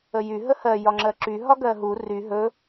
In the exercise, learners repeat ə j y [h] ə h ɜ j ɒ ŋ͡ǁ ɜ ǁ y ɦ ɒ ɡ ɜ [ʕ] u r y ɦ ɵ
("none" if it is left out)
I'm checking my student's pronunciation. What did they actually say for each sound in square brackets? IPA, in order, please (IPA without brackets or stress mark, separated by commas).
ɦ, ɦ